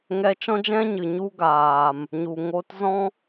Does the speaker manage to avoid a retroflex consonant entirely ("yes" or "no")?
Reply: yes